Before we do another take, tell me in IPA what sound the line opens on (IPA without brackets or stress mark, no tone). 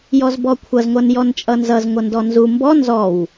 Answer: j